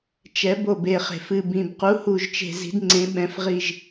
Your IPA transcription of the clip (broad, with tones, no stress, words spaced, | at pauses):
t͡ʃɛ˩˥bo˨˩be˨˩χe̤˨˩f ɨ˨˩bĩ˨˩b qu˩˥hu˨˩ʒt͡ʃe̤˨˩ zi̤˩˥dŋ͡ǀẽ˩˥ ɓɛ̃˨˩fʁi˨˩ʒ